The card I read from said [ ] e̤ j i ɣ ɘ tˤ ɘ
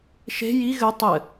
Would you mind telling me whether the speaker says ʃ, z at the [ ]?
ʃ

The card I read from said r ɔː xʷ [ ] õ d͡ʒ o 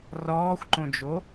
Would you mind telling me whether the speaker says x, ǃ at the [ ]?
ǃ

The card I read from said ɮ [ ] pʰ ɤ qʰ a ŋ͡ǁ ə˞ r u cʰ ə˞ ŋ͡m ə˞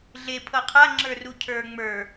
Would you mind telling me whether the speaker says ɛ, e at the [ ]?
e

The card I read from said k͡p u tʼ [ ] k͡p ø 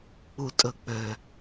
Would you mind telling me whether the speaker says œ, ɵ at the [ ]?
ɵ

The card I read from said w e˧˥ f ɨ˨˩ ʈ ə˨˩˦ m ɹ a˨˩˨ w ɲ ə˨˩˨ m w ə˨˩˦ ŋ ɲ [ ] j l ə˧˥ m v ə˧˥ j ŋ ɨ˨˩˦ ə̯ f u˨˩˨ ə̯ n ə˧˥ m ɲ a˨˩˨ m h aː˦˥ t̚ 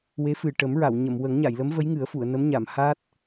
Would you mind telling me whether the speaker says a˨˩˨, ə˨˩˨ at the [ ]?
a˨˩˨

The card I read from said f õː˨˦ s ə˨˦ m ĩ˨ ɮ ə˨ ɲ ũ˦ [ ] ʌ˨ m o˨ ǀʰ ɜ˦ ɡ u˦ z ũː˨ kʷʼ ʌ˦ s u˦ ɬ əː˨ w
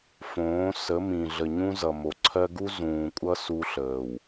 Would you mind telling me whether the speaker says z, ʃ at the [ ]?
z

